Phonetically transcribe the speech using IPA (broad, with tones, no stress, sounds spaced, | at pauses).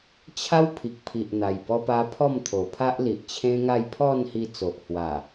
t͡ɕʰ a˦ w pʰ i˨ k̚ pʰ i˨ ʔ n̪ a˨˩ j b ɔ˧ p a˧ pʰ ɔ˥˧ m t̪ʰ o˨˩ pʰ a˦ ʔ l i˨ ʔ t͡ɕʰ ẽ˦ ŋ a˥˧ j pʰ ɔ˥˧ n h i˧ t͡s o˨ ʔ h w a˨˩